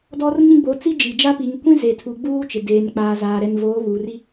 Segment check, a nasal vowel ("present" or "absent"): present